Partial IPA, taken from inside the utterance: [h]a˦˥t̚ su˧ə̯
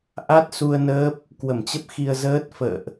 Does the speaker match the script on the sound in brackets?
no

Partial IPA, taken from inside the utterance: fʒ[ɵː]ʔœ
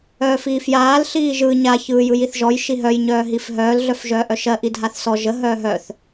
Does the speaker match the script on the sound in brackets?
no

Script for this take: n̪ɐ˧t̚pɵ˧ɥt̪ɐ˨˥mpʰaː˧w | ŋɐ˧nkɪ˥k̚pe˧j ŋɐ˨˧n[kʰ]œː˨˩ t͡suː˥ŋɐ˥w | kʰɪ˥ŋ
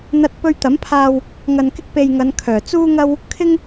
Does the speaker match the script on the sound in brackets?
yes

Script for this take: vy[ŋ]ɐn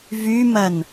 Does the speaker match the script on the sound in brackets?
no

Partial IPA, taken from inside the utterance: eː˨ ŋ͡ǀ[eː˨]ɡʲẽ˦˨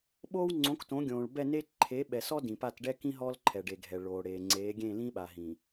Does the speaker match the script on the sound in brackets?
no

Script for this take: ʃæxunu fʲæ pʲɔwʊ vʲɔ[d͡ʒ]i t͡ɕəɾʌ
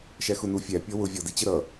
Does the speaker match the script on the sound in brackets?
no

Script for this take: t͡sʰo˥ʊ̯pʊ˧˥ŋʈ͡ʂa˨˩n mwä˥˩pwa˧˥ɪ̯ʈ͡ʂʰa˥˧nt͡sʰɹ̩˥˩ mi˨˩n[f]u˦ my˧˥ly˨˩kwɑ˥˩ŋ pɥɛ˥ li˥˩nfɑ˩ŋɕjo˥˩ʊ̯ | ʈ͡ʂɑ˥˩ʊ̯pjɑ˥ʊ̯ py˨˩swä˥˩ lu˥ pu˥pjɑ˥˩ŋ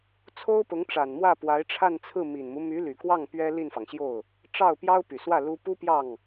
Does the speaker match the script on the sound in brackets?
no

